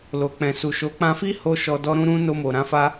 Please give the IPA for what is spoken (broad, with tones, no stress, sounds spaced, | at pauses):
l o˨ k͡p ɛ̃˨ s u˨ ʃ o˨˦ k͡p ã˧ f i˦ h o˦ ʃ ɔ˧ d ɔ˦ ɾ ũ˦ ɾ ũ˦ n o˧ m o˨ ɾ ã˧ f a˦